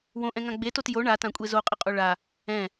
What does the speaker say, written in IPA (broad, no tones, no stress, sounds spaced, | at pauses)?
w õ ʔ ɛ̃ ŋ ã ɡ͡b e t o t j o ɳ a t ã kʷʼ e z o qʼ ə qʼ o ɭ a | ɛ̃